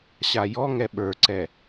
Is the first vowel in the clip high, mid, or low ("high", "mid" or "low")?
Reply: low